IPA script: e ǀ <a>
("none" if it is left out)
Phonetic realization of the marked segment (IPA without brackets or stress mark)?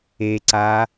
a